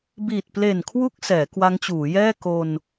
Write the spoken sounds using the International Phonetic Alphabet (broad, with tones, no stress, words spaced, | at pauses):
biː˨˩t̚ple˨˩nkʰwu˦˥k̚ sɛː˩˦kwa˦˥ŋt͡ɕuː˩˦jɛː˥˩ ko˧n